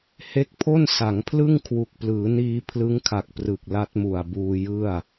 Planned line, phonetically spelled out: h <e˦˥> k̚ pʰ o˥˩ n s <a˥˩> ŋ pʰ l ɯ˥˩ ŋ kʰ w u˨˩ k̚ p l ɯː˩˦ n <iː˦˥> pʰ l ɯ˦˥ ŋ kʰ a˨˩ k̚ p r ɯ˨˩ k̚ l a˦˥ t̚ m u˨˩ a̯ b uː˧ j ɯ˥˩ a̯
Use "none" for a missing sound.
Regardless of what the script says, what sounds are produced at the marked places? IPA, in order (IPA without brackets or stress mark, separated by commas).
e˦˥, a˩˦, iː˧